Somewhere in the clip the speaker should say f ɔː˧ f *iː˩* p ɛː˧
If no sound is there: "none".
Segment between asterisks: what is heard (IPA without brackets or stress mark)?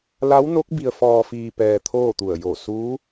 iː˧